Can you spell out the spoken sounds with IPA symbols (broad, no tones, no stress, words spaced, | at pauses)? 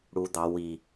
ɽu d̪ɑ wi